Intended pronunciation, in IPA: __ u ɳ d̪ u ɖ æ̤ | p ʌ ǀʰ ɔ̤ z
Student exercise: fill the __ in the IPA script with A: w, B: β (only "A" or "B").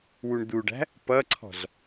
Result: A